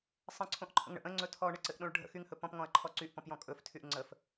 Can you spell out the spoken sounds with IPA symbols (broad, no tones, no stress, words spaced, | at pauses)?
sˤə̃ǀʰõʔǃʰə̰ŋ ɳə̰ʔ ə̃ŋ͡ǀɵ tʰɔɳəǀɘʔ ɗõɭɖʱə̰ xyŋhɵ pɔ̃pŋɔ̃ɐ̯ǃʰɔ ǀyʔpɔ̃pjɔ̃ kʼɵf tʰyʔŋ͡ǀəf